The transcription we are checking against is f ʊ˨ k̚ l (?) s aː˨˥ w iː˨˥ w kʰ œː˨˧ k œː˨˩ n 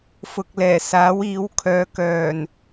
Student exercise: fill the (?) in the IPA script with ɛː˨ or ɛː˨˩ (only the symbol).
ɛː˨˩